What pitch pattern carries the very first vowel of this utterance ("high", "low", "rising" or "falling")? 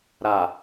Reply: low